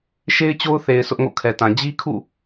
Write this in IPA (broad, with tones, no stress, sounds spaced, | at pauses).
ʃ e˦ ɪ̯ t͡ɕ o˦ ʊ̯ θ e˨ ɪ̯ s ʊ˦ ʔ ŋ o̰˦˨ kʰ ɛ˨ t ã˨ d͡ʑ i˦ kʰ ṵ˦˨